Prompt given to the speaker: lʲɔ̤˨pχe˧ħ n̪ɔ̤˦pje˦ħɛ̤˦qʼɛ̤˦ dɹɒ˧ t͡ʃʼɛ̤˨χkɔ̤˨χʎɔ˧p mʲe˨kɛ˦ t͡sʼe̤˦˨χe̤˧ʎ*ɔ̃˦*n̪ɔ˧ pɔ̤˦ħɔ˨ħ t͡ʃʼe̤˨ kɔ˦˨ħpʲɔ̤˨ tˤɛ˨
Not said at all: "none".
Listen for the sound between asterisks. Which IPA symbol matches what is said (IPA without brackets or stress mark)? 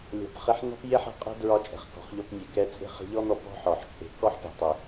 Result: ɔ˦